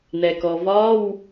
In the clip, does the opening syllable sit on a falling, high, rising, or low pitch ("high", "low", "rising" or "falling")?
low